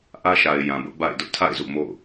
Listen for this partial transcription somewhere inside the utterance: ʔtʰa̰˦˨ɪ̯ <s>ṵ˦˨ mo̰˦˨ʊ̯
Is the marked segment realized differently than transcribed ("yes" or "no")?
yes